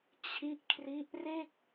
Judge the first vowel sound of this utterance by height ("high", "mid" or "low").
high